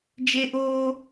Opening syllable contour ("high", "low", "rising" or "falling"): high